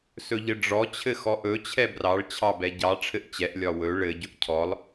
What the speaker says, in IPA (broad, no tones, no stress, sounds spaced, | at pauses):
s ɵ ʎ ɘ ɖ͡ʐ ɔ t͡ɕʰ ɘ x ɔ ʔ ɵ t͡ɕʰ ɛ b r ɑ ɭ t͡ɕʰ ɑ b ɛ ɟ ɑ ʈ͡ʂʰ ɘ ʔ t͡ɕ ɛ ʔ lʲ ɒ w ɵ ɭ ɘ ɟ ɵ ʔ cʰ ɔ lˠ